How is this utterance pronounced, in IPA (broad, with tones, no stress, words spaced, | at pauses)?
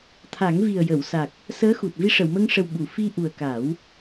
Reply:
t̪ʰa˨˩˦ŋvi˨˩ə̯jə˨˩˨w sa˨˩k̚ | səː˧˥xu˨˩t̚ vi˧ʂə˨˩˨wmə˧ŋʂə˨˩w ɓu˨˩˨fi˧ʔu˨˩ə̯ ka˨˩˦w